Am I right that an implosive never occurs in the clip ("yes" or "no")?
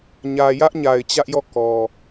yes